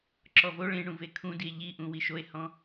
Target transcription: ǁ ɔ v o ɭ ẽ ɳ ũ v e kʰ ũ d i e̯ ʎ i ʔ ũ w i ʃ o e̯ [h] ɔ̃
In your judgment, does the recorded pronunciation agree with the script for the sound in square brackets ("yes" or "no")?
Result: yes